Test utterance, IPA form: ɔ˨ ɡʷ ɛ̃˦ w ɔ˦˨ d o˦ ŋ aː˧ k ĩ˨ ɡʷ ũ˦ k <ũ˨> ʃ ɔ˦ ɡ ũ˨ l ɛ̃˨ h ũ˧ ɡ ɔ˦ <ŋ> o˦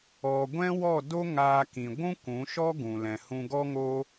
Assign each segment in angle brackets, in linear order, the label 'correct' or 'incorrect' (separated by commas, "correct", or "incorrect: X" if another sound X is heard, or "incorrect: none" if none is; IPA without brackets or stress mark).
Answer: incorrect: ũ˨˦, correct